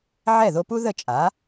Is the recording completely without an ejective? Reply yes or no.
no